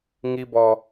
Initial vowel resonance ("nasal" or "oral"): oral